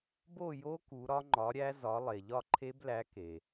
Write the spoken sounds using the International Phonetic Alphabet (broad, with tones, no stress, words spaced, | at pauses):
bo˥˨jo˦˥ku˩˧ ɾɒ˦˥ŋ͡ǃɒ˨˥ɾʲæ˦˥ zɒ˨˥ lˠe˩ʎɒ˥˨ǃʰe˦˥blæ˨˥ ke˩